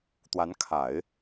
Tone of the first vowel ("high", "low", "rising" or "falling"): rising